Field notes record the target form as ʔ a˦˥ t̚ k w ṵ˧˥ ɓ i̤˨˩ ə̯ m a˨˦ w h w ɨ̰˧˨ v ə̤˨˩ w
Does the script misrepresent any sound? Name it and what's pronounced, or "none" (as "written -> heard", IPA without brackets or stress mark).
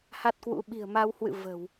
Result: ʔ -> h